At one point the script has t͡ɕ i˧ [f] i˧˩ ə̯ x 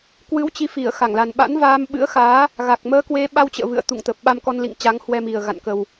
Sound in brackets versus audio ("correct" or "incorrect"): correct